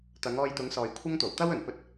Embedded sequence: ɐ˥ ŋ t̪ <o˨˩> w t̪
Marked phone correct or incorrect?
correct